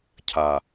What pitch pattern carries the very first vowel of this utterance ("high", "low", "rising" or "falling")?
low